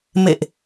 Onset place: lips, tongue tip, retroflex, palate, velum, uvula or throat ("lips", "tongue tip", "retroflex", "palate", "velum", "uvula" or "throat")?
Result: lips